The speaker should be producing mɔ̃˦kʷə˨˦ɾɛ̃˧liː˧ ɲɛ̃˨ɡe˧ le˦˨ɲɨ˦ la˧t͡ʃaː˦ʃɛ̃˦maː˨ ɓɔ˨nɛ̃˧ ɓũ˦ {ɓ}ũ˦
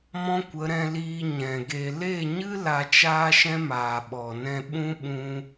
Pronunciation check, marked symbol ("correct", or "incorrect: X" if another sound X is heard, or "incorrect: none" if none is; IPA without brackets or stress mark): correct